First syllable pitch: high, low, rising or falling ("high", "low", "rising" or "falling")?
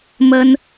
high